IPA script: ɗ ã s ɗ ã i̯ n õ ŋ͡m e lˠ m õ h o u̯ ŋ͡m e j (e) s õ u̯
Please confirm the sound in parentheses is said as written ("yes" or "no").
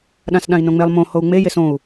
yes